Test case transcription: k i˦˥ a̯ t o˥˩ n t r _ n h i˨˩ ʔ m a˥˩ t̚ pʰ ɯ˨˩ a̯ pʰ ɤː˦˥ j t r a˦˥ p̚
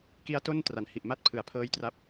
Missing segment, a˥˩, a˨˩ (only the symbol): a˨˩